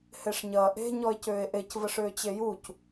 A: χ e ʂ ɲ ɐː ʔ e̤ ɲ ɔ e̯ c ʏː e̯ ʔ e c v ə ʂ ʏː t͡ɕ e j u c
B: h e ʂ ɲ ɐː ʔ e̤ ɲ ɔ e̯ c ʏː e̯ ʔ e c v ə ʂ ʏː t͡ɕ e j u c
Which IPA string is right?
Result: B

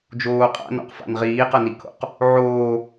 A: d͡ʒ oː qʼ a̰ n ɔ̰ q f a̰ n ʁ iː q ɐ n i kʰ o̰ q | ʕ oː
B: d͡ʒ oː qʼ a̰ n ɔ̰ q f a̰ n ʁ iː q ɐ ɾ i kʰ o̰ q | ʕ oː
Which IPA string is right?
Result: A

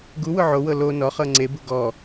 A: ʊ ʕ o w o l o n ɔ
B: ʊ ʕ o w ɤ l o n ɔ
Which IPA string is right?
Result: B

